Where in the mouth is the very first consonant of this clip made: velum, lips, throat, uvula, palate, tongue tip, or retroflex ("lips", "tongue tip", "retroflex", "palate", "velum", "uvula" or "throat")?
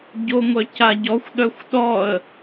palate